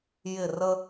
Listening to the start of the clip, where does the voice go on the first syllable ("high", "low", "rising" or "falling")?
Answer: falling